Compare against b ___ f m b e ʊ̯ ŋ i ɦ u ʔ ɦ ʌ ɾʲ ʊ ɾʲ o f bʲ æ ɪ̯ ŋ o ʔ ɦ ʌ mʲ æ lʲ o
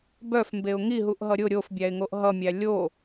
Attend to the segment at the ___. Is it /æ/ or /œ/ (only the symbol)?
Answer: œ